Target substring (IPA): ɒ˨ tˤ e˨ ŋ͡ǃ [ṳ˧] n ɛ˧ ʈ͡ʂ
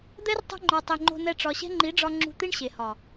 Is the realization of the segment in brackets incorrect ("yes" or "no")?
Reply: yes